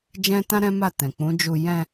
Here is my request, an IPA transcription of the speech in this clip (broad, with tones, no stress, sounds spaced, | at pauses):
d͡ʒ ɛ̃˦ t ã˦ ɾ ɛ̃˦ m a˦˨ t ɛ̃˨ k͡p ũ˨˦ d͡ʒ u˧ j ɛ̃˧